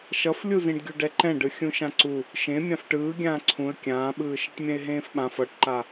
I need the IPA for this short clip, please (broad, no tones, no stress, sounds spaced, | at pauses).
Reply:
ʃ ʌ f lʲ u z ĩ ɖ ɡʲ u ɖ ɛ ǃ ɛ̃ ɖ ɯ xʲ ũ ʃ ã ǀ u | ʃ ẽ mʲ ã f ʈ ɯː ɡʲ ãː ǀʰ ũ ə̯ kʲ ãː ɓ ɯː ʃ e ʈ mʲ ɛ̃ ɪ̯ ɦ ẽː f ɓ ã f ʌ ʈ ǃ a